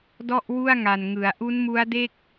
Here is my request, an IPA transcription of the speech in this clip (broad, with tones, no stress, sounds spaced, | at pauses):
d ɔ˥˩ ʔ w u˥˩ a̯ ŋ a˨˩ n ŋ ɯ˩˦ a̯ ʔ u˦˥ n m u˦˥ a̯ d e˥˩ k̚